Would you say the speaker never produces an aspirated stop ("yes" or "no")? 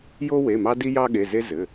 yes